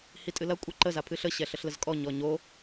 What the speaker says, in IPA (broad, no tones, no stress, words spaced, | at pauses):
hitʼɨlɐ kʷʼɨǃə zapʰɨɬə ɕɛɬəɬləzkʼɔ ɲɔɲo